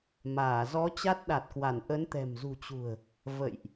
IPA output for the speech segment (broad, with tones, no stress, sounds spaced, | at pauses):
m aː˧˩ z ɔ˨˦ t͡ɕ a˦˥ t̚ ɗ a˨˩ t̚ k w a˧˩ n ʔ ə˨˦ n t̪ ɛ̤˨˩ m z ṳ˨˩ t͡ɕ ṳ˨˩ ə̯ | v ə̰˧˨ j ʔ